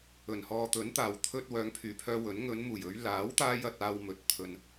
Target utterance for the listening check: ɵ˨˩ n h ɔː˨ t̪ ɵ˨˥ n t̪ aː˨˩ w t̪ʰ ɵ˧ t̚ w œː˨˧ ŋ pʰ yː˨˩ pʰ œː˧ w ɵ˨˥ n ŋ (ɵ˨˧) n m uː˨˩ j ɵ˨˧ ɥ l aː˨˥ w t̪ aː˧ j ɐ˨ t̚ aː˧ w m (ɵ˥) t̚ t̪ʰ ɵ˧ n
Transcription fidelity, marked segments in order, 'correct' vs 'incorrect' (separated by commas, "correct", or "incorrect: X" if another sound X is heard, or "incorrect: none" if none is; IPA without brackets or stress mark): correct, incorrect: ɵ˨